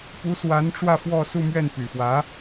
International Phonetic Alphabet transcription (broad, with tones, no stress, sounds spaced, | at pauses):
p u˧˥ s w a˧˥ n ʈ͡ʂ w ä˥˧ f w ɔ˥˧ s u˥˧ m ɥ ɛ˥˩ n p y˨˩ f w ä˧˥